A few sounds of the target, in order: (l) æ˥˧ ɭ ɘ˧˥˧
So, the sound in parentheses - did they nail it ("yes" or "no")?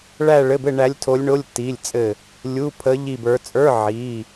no